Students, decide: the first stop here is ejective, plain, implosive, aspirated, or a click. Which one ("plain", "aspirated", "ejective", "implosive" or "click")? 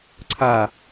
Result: click